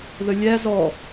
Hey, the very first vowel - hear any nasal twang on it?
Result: no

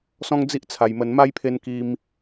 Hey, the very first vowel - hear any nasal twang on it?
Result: yes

